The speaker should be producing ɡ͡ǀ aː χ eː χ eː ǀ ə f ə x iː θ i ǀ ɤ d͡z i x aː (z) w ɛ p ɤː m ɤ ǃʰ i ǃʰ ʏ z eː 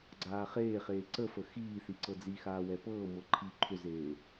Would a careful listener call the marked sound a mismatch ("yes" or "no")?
yes